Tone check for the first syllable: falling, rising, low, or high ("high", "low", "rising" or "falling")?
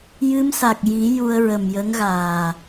rising